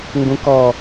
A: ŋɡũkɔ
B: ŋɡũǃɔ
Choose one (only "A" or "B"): A